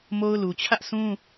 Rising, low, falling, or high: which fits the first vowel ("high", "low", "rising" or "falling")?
high